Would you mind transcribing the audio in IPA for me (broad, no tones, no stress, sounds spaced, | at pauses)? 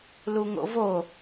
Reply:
l u ŋ o̰ v o